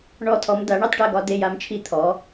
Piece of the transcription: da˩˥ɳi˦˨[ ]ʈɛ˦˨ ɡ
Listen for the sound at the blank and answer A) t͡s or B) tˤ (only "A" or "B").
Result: B